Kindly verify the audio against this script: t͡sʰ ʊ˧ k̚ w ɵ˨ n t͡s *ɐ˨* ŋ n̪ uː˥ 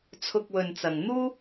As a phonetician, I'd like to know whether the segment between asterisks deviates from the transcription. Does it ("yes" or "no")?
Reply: no